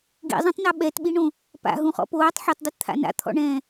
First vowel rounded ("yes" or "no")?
no